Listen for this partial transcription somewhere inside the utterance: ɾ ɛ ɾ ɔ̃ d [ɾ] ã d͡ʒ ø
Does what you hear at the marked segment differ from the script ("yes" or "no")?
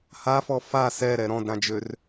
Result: no